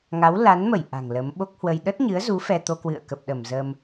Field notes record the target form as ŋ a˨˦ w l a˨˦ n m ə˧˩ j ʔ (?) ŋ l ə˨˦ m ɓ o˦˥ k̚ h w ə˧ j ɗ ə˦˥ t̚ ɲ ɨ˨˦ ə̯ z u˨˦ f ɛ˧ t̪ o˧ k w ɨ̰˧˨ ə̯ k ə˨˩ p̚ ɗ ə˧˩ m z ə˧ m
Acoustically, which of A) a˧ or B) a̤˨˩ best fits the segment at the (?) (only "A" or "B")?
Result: B